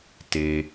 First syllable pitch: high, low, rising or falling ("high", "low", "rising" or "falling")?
low